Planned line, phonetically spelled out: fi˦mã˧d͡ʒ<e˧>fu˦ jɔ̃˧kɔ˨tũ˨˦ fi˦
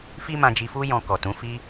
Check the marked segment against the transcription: incorrect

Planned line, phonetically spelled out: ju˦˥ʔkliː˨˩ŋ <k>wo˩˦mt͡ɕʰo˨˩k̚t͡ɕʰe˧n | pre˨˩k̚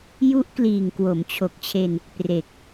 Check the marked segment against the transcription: correct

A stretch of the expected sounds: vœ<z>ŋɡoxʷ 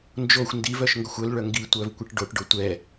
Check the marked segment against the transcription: incorrect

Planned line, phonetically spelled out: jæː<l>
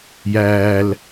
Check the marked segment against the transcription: correct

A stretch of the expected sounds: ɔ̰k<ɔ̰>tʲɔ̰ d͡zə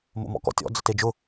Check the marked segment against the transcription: correct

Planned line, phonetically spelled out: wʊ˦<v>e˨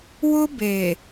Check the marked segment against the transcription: incorrect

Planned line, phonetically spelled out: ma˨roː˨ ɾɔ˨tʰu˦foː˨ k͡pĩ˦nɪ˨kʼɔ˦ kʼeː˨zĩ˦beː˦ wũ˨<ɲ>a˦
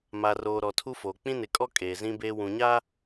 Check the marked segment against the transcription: correct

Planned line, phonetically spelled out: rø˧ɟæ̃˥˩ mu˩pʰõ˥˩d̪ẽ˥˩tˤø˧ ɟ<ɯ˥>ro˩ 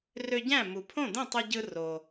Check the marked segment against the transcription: incorrect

